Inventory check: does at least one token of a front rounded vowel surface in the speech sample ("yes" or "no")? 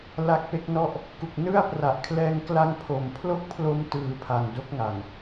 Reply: no